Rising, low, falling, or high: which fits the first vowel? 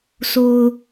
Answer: low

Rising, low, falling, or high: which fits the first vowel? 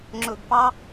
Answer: low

